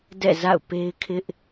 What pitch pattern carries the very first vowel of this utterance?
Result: falling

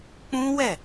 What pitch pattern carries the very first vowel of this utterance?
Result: high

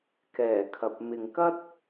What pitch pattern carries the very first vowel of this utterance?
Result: low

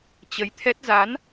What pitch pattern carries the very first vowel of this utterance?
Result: rising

